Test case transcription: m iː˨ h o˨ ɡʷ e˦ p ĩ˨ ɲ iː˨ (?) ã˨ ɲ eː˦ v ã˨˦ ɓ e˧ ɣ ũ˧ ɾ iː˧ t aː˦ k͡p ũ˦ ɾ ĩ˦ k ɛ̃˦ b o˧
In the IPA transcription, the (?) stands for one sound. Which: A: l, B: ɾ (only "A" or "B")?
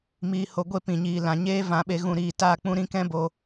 A